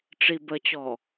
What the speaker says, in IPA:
ʈ͡ʂ i b ə t͡ɕ ɔ

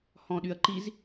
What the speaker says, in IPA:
h ɔ̃ ɗ y ɐ̯ ǃ i z

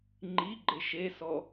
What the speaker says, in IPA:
ŋ͡ǃ i ɡ͡ǃ ɪ ʃ e s ɔ

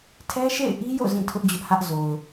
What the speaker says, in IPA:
tʰ ɛ˦ ʃ ḛ˦˨ ɪ̯ ʔ i˦ j o̰˦˨ z ĩ˦˨ tʰ ʊ˦ ʔ d͡ʑ ʊ˦ ʔ h ä˦ ʔ z o˨ ʊ̯

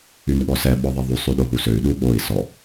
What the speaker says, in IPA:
y n ɠ ɔ s ɛ ɓ ɔ ðˤ i ðˤ y sˤ y ɗ o ɦ u s ø y̯ ɗ u ɠ o i̯ s ɔ

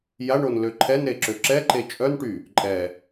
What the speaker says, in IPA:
j a ɳ o n l ø ǃʰ ɛ n ɾ e ǁ ø ǁ ɛ ǃ e t͡ʃʼ œ n ʈ y | ǃʼ ɛ

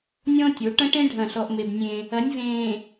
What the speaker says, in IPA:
nʲ ɔ̃˦ tʲ o˨˦ ʈ ɐ̃˦ ʈ ẽ˦ ɖʱ ɐ̃˦˨ ɬ ɔ˦ ʔ m e˦ b nʲ ẽ˦ | ɐ˨˦ nʲ v ẽː˨

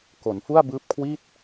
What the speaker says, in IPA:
k o˩˦ n f u˥˩ a̯ b ɯː˦˥ p̚ kʰ w i˥˩ t̚

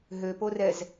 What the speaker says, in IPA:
ɦ ø p o r ɛ z

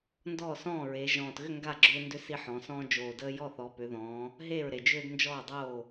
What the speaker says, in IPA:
n d ɔː˥˩ s ɔ̃ː˥˩ ɹ e˩˧ ʒ ɔ̃ː˨˩ t ɣ ʏ˥˩ ŋ ɡ a˥˩ ɡ͡ǁ ʏː˦ n d ʏ˦ s i˦ ħ ɔ̃˩˧ s ɔ̃ː˦ d͡ʒ oː˨˩ d əː˦ j ɔ˥˩ θ ɔ˩˧ p ʏ˩˧ ð ɔ̃ː˩˧ | ɦ eː˥˩ ɹ ɾ e˨˩ d͡ʒ ʏː˦ d n d͡ʒ ɔː˥˩ dˤ oː˥˩

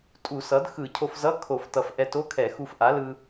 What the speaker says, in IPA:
tʼ u˧˩˧ s ʌ˩˥ d x ɯ˧˩˧ cʰ o˧ f z ʌ˧˥˧ kʰ o˧˩˧ f t ʌ˨˩ f ʔ ɛ˧ t o˧˥˧ kʰ ɛ˧˩˧ x u˧ f ʔ a˩˥ l ɯ˧

